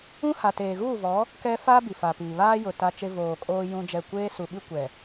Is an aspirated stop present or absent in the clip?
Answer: absent